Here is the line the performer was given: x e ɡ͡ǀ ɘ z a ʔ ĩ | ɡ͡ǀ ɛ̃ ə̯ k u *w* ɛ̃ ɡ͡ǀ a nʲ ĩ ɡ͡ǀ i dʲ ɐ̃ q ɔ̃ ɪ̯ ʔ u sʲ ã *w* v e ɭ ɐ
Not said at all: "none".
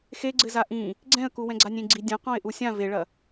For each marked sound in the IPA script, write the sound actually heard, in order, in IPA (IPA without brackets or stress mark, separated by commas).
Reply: w, none